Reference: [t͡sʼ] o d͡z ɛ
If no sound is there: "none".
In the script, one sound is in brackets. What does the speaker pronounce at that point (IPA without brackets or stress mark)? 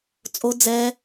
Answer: t͡sʼ